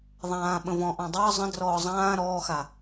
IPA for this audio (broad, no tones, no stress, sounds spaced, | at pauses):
ðˤ ãː ɓ ə̃ v ɔ̃ ʔ ɔ̃ dˤ ʌː zˤ ə̃ d r ɔː zˤ ãː ɾ ɔː x a